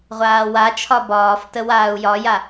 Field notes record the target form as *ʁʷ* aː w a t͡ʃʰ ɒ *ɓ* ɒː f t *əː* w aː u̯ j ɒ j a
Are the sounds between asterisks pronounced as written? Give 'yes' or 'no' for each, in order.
yes, no, no

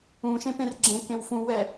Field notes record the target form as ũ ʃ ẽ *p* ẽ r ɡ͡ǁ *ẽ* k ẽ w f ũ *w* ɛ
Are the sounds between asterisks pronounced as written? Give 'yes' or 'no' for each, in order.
yes, yes, yes

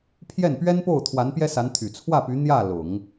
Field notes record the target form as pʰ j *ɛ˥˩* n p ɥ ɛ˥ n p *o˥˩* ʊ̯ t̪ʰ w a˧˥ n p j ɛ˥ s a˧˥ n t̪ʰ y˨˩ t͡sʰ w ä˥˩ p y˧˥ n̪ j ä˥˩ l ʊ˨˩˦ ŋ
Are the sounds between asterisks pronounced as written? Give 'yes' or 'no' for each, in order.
yes, yes

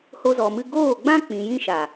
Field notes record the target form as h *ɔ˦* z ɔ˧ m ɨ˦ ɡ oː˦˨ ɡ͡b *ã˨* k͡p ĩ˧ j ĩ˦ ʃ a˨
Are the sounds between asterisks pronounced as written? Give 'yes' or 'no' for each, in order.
no, no

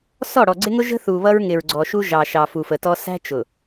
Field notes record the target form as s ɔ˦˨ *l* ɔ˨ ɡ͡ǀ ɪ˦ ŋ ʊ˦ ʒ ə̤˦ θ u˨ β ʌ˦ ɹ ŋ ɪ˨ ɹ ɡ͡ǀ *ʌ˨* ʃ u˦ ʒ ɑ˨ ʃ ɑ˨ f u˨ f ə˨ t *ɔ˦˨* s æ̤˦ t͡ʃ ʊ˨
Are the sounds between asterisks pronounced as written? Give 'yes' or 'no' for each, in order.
no, no, no

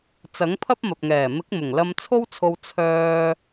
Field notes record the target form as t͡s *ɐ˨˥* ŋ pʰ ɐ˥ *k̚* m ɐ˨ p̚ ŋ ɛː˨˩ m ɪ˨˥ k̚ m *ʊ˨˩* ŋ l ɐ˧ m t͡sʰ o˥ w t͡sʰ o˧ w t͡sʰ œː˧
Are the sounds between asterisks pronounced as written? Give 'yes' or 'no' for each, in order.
yes, no, yes

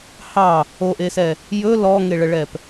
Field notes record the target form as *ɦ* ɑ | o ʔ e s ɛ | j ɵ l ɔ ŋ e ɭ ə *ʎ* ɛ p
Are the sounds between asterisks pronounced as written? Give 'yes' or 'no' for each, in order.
no, no

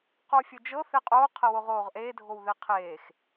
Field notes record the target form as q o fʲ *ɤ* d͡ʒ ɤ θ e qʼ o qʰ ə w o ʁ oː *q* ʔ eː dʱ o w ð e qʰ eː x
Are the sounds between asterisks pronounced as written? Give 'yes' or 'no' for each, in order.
yes, no

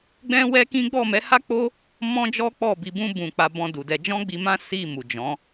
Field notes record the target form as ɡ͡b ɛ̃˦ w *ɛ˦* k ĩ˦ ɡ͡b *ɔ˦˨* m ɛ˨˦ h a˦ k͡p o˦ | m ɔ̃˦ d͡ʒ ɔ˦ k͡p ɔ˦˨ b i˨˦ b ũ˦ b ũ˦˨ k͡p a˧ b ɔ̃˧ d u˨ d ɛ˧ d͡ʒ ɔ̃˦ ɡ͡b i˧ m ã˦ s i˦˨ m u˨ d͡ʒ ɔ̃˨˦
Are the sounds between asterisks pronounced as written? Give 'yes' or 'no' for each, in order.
yes, yes

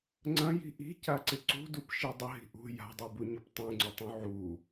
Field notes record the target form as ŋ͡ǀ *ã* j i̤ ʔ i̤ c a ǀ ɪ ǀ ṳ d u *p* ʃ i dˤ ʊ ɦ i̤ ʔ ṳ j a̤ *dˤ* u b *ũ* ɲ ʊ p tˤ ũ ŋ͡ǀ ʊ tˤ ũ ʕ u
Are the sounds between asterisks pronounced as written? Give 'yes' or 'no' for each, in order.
no, yes, yes, no

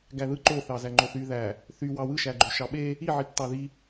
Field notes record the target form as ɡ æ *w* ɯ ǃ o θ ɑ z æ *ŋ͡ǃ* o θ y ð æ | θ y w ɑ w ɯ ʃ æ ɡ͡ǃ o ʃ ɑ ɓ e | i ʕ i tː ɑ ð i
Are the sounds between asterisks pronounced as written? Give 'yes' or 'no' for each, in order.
no, yes

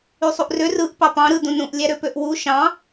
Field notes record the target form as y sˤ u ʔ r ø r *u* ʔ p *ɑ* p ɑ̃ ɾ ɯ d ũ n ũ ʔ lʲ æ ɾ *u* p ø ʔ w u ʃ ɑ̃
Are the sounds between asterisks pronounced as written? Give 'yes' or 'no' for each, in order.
no, yes, no

